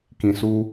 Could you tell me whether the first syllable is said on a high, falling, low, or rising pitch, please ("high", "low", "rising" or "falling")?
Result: low